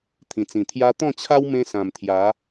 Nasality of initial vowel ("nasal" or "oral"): nasal